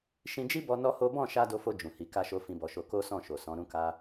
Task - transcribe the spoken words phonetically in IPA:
ʃĩ˧d͡ʒi˦bɔ˧ nɔ˦ho˦ bɔ̃˦˨ʃa˧ do˧fo˧ d͡ʒũ˨hi˨˦ ka˦ʃo˦ fĩ˧bɔ˧ʃo˧ ko˦sɔ̃˦˨ ʃo˨ sɔ̃˨˦ɾũ˦ka˦

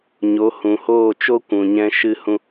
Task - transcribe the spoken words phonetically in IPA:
ɲo˨˦hũ˨ hoː˦˨t͡ʃo˦kʷũ˨ ɲɛ̃˦ʃɨ˦ hũ˦

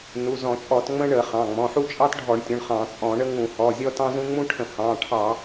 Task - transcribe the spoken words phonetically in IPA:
nu˩˧˩zɔ̃˧˩˧t͡ʃʼɔ˧˩˧t ŋ͡mə̃˥ɳə˧˩˧ χɑ̃˩˧˩ŋ͡mɔ̃˩˧˩ħu˥ t͡ʃʼɑ˥tɖʱɔ˧˩˧ɳtʲɔ̃˩˧˩ɳ χɑ̃˧˩˧t͡sʼɔ̃˧˩˧ɳə˥ ŋũ˧˩˧hɔ˩˧˩ zʲɔ˥tɑ̃˥zũ˥ ŋ͡mũ˥ʈʰə̃˧˩˧ hɑ̃˩˧˩ ʈʰɑ˧˩˧

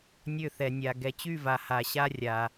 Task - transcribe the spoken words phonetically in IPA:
nʲø˦˨θɛ˨nʲa˨ ɡɛ˨t͡ɕy˦˨va˨ ha˨ɕa˦rʲa˨

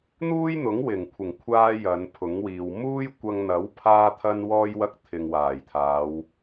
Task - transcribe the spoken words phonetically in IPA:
n̪uː˥jn̪ʊ˨˥ŋwɪ˨˩ŋkʷʰɪ˨˩ŋ kʷʰaː˥jɐ˨˧npʰʊ˨˥ŋwiː˨w muː˥jkʷɐ˧ŋn̪ɐ˨˥w pʰaː˥t̪ʰɐ˥nwɔː˥jwɐ˥k̚ t̪ʰɪ˨ŋwaː˨˩jt̪ʰaː˨˧w

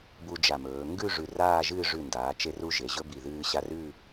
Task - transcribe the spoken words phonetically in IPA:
bu˧ d͡ʒa˧˩mɵː˩˧ ŋɡʉ˥˧ ʐʉ˧˩raː˥˧ʒɨː˥˧ ʐʉ˧˩ndaː˩˧ t͡ʃe˧ ru˧ ʒe˩˧ʑɵ˥bi˧˩ ðɨː˧ɕa˧r ʉ˥˧

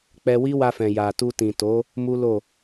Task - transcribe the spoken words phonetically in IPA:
k͡pɛ˧wi˦wa˧fɛ̃˨ ja˨tu˧tĩ˨to˨˦ | mu˦lo˦˨

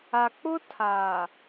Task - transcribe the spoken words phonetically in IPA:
a˨k͡pʊ˦tʰaː˨

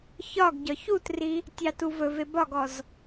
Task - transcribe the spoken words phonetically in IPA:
çɒɡ ɟɒçutri | tʲɑtuvɵve bɒɡɔz

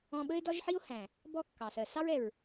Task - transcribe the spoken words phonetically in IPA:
ɔ̃˧ɓə˦e̯dɒ˦ʒħi˦o̯ hæ̃˨ | bɔ˦kːɑ˨ sɜ˨sɑ˦ɹɛ˨ɹ

